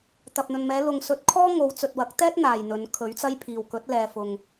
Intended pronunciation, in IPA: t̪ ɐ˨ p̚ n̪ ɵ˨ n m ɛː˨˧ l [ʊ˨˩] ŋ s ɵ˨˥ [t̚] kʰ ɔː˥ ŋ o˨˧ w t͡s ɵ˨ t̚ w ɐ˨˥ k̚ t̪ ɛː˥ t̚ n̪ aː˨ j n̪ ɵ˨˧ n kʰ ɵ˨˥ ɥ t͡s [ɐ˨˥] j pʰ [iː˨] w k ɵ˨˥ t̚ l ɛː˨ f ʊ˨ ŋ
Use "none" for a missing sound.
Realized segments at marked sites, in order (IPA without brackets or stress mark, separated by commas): ʊ˨, t̚, ɐ˥, iː˨